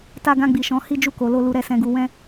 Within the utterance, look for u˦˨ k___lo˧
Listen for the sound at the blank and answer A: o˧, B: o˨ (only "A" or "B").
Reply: B